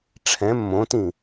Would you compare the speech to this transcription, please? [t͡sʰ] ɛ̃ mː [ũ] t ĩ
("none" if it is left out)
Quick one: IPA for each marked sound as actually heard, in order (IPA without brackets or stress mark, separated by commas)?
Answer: ʈ͡ʂʰ, õ